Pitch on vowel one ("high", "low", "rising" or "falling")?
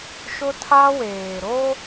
high